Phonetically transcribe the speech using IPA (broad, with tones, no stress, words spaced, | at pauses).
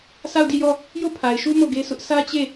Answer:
sa˦˨ʊ̯di˦˨jɔ˦˨ | jo˦˨pʰa˨ɪ̯ʃu˦ mo˦˨ɡe˦sʊ˦ʔ sä˦t͡ɕe˦˨